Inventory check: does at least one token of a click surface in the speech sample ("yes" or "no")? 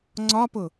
yes